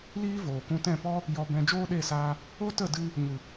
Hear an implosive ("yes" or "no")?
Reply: yes